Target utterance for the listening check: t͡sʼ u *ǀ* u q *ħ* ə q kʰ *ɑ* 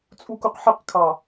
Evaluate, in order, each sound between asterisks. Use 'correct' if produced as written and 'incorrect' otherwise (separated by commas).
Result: incorrect, correct, correct